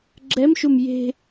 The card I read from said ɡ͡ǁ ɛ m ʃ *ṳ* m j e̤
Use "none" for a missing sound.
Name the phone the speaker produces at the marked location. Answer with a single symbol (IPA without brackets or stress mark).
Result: u